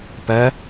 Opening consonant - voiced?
no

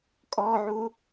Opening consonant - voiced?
no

